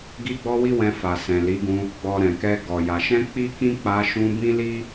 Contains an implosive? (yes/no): no